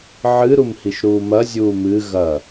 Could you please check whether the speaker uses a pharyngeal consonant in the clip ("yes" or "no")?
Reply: yes